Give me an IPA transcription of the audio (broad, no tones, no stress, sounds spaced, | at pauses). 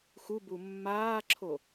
x u b u mː aː ǁʰ o